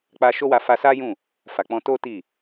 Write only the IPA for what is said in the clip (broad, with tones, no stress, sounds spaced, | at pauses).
k͡p a˧ ʃ o˦ w a˧ f a˧ s a˦ j ũ˦˨ | f a˨ k͡p ɔ̃˧ t o˦ t i˦˨